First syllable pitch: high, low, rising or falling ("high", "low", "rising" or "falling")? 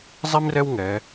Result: high